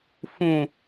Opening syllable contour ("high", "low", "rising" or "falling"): low